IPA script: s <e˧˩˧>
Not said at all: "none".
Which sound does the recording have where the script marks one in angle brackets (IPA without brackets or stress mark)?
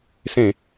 ẽ˧˩˧